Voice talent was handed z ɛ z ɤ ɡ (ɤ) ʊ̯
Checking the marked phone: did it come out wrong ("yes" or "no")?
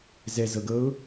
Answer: no